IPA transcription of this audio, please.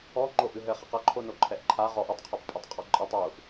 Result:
ɔ ŋ͡ǃ o ʔ ɨ ɦ ɘ χ ɐ q ɐ ǃʰ o n o ǃʰ ɛ ʔ ǃʰ a ʁ ɔ ʔ u tˤ qʰ a tˤ pʼ e tˤ qʼ ɔ ǃʼ i tˤ u ʔ

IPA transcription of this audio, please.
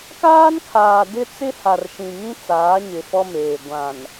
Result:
k aː˦ n kʰ aː˨ d ɪ˦ t͡s ɪ˦ h a˨ r ʃ ĩ˨ ŋ ĩ˦ t͡s aː˨˦ ɲ ɪ˨ f ɔ˦ m eː˨ ɡʷ ã˨ n

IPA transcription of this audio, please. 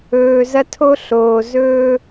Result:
ɵː˨ z ɐ˦ tʰ o˦ ɬ oː˨ z ɵː˦

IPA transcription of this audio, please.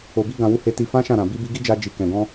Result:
o˨ b i˧ ɡ ã˨ w u˨˦ h e˧ t i˧ f ã˦ ʃ ã˦˨ ɾ ã˨ b i˧ b i˧ ɡ i˦ d͡ʒ a˧ d͡ʒ i˨ k ɛ̃˨ ɡ ɔ̃˧

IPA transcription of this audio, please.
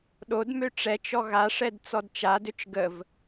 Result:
ɗ o d m ø ʈ͡ʂ ɛ t͡ʃ ɔ ɣ a ʂ ɛ d t͡s ɔ d t͡ʃ a d ø t͡ʃ ɡ ə v

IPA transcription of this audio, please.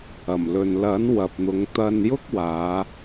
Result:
ɐ˨˩ m l ɵ˨ n l ɐ˨˥ n w ɐ˨ p̚ n̪ ʊ˨˧ ŋ t̪ ɐ˨ n j ʊ˥ k̚ w aː˨˧

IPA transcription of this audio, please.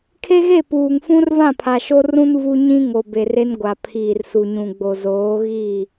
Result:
kʰ e˦ ɣ e˦˨ p uː˨ ŋ f ũ˦ r v ã˦˨ pʰ a˨ ʃ o˦ r ũ˦ n v u˦ ɲ ĩ˦ ŋ o˨ b e˨ r e˦ n ɡʷ a˨ pʰ iː˨ r s u˨ ɲ ũ˨ ɡ͡b o˨ z oː˨˦ ɣ iː˦˨

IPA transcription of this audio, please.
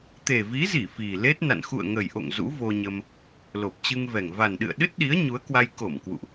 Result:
t̪ e˨˩ v i˨˦ z i˧˩ f i˨˩ l e˦˥ t̚ n a̰˧˨ n x ṵ˧˨ ə̯ ŋ ə˨˩ j ʔ o̰˧˨ ŋ z ṵ˧˥ v o˧ ɲ ə˧ m | l o˨˩ p̚ t͡ɕ ɨ˧ ŋ v ɛ˨˩ ŋ v a˨˩ n ɗ ɨ̰˧˨ ə̯ ɗ ɨ˦˥ t̚ ɗ i˨˦ ə̯ ɲ u˨˦ ə̯ k w a˧ j k o˧˩ m k w ṵ˧˨ ʔ

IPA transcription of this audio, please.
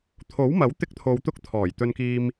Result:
t̪ʰ o˨˥ w m ɐ˨˥ w t̪ ɪ˥ k̚ t̪ʰ o˧ w t̪ ʊ˥ k̚ t̪ʰ ɔː˨˩ j t̪ ɵ˧ n k iː˧ m

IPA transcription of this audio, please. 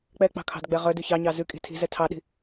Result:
k͡p ɛ k͡p ɑ̤ kʰ ɑ̤ d ɡ͡b ɛ ʁ œ d ʉ ç ɑ ɲ ɑ z ʉ kʼ i̤ tʰ i̤ z ɛ tʰ ɑ ɗ i̤

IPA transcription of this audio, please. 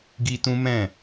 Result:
ɡ i˦ t ũ˦ m ɛ̃˦˨

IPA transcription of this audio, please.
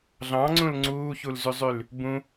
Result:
ɮ ɑ̃ ŋ͡ǀ ũ l ŋ͡ǀ uː ç u l z y zˤ y l | b ũ

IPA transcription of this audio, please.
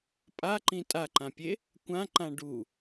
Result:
pʼ a ǃ ĩ tʼ a ǃ ã pʲ e | kʷ ã ǃ ã ɖ u

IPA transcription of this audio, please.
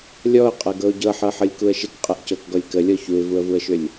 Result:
lʲ ɔ ʊ̯ qʼ ɤ ɡ ɤ ʊ̯ ɟ ɤ ħ ɤ ħ ɤ lʲ k u ə̯ ʃ ɪ k qʼ ɤ ʔ c ɤ k ɡ ɔ lʲ k ə lʲ ɔ ç u ɪ̯ v u ə̯ v u ə̯ ʃ ʏ lʲ

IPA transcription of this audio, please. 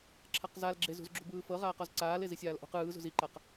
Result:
ǁʰ a q z a l ɡ͡ǁ e z ṳ z ɡ͡ǁ ṳ b ɯː f ɤ ʁ aː q ɔ z ǀ aː l e z i sʲ aː l ʔ o̤ q ɯː z ṳ z i ǃ a q

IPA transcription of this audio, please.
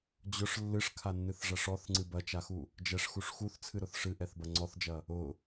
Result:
d͡ʑ ʊ ʂ lː ɨ ʂ kʰ a nː ɨ θ ʐ ɐ ʂ ɔ θ ŋ͡ǀ ɨ b ɐ t͡ʃ a x u | d͡ʒ ɛ ʂ x u ʂ x u θ t͡sʰ ɨ ɾ ʊ θ ʂ ɨ ʔ ɛ θ b ɐ ŋ͡ǀ ɔ θ d͡ʒ ɐ | ʊ

